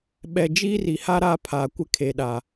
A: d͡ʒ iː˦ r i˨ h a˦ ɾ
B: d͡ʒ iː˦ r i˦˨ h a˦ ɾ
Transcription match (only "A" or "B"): A